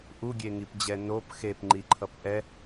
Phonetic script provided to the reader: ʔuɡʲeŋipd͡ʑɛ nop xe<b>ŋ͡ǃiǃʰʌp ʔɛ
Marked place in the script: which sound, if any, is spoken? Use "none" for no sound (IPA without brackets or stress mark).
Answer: p